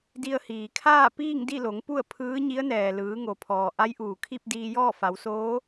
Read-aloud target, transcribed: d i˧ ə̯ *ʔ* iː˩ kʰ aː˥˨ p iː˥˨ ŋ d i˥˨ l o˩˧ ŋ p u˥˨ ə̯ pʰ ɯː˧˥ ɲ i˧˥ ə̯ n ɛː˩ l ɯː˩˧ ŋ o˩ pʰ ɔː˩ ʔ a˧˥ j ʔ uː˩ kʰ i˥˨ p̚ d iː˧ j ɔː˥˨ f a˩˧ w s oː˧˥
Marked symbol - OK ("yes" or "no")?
no